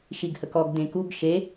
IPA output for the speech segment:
ʃ i ɡ h ə k ɔ ɡ d ẽ k u ɡ ʃ e

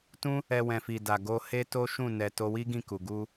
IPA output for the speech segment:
t ũ˦ | ɛ˧ w ɛ̃˨ f i˨ d a˨ ɡ o˧ h e˦ t o˦ ʃ ũ˦˨ n ɛ˨ t o˧ w i˦ ɡ ĩ˦˨ k u˨ ɡ u˧

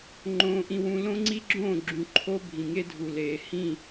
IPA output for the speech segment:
ŋ͡ǃ õː˦ ʔ ĩ˦ w ũ˦ l õ˦ ŋ͡ǀ i˦ ɡ͡ǁ õː˦˨ ɡ͡ǁ ũ˨ ǃʰ o˦ bʱ ĩ˨ ŋ e˦ dʱ u˨ l eː˨ h ĩ˦˨

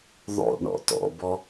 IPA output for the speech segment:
ðˤ o̰ ɳ ɔ̰ t ɔ̰ b ɔ

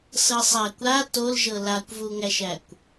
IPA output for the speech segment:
s ɤ sˤ æ kʷ a t o l ʒ ɤ l a kʷ v u ŋ æ ʃ æ kʷ

